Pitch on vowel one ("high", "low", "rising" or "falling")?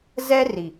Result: high